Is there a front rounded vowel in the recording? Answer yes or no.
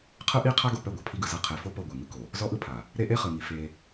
no